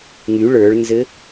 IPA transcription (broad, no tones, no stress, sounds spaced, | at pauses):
ŋ y ɭ ə˞ ɭ n z ɘ